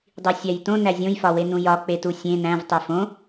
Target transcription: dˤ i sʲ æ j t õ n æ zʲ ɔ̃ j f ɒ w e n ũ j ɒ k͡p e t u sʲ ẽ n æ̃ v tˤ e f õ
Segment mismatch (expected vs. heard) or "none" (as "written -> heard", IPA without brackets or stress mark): ɔ̃ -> õ